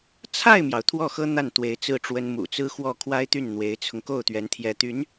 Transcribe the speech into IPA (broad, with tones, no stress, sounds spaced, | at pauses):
t͡sʰ a˥˩ ɪ̯ m j ɑ˩ ʊ̯ t̪ʰ w ɔ˥˩ x ɤ˥ n̪ a˥˩ n t̪ w e˧˥ ɪ̯ t͡s ɹ̩˥˩ ʈ͡ʂ w ə˥ n m ṵ˨˩ t͡s ɹ̩˥ x w ɔ˥˩ kʰ w a˥ ɪ̯ t̪ y˥˩ n n̪ w e˧˥ ɪ̯ t͡sʰ ʊ˧ ŋ k o˥˩ ʊ̯ t̪ ɥ ɛ˧˥ n t̪ʰ j ɛ˧˥ t̪ y˧˥ n